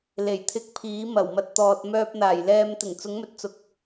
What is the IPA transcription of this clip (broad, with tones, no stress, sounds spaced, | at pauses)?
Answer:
l e˨˩ j t̪ʰ ɪ˧ k̚ pʰ iː˨˥ m ɐ˨˩ w m ɐ˧ t̚ t̪ ɔː˨ t̚ m œː˧ p̚ n̪ aː˨˩ j l ɛː˧ m t̪ ɪ˨˩ ŋ t͡s ʊ˨˥ ŋ m ɵ˨ t̚ t͡s ʊ˨˥ k̚